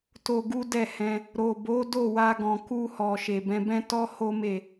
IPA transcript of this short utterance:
to˧ɡu˦dɛ˦˨ hɛ̃˧ | ɾo˨bo˨˦ do˦˨wa˧ɡɔ̃˨ ku˧hɔ˨ ʃe˨bɛ̃˧bɛ̃˦ tɔ˦ho˦me˦˨

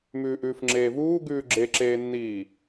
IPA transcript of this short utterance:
mʉːʔʉːfŋ͡ǁeːvuː ɡʉːɡ͡ǁeǁeːnːiː

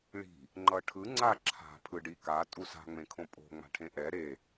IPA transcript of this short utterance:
ɭi̤ | ŋ͡ǃʌʈʰɯ ŋ͡ǀaǁʰa̤ pʰɯɖika tʼusa̤ ŋ͡mẽkʰõpʼo̤ ŋ͡ma̤ʈʰẽʔɛ ɾe

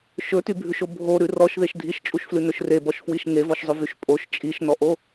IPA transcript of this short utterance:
ʃɵtybʱʉʃo bʱoɾʉ rɔʃðeʃ dʱiʃt͡ʃʼuʃflʉnɵʃ rebɔʃfwiʃ ŋevɔʃzˤɵvyʃ pʼoʃ t͡ʃʼiʃnɔʔo

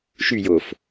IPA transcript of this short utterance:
ʃy jof

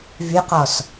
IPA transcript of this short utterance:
vyqɔs

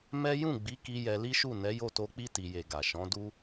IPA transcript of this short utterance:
mɛ˦ jũ˦˨ɡ͡bi˨˦ki˧ jɛ˧li˦ʃu˦˨ nɛ˨˦jo˦˨to˧k͡pi˦ ti˧je˧ɡa˨ ʃɔ̃˨˦du˦

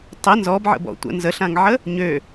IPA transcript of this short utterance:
tˤə nzɔbʕə̰bɔ̰ tʷə̰ nzəɬãŋʕə | ɲø

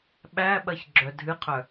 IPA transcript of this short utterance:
ɓæɓɐç ɡ͡ǁœdʱɨqʰœ

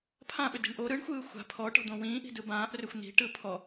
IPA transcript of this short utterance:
pʰãɓʏdi̤ɳ ʔo ɾɯɳxʷɯː xʷa̤ pʰɔʈɔ̤d̪õ wĩːʔi̤dɯ bãːʔrʏxʷ n̪i̤ʈɯ pʰɔ

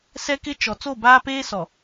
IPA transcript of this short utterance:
sɛ˦kɪ˦ t͡ʃɔ˨ t͡so˦˨baː˦peː˦sɔ˨

